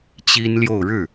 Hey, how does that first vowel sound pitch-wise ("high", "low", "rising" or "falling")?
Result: high